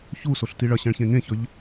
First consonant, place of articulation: palatal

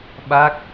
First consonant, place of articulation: labial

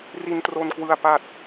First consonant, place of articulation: alveolar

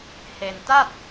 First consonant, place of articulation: glottal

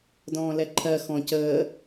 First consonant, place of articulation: alveolar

